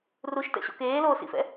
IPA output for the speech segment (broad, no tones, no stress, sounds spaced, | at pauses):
r u ʃ t ɛ̰ ɕ o̰ k eː l oː s ḭ f ɛ̰